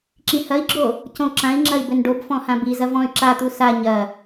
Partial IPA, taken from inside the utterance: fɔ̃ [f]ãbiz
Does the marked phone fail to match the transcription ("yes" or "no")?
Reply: yes